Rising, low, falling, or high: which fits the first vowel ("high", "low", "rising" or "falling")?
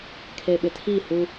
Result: low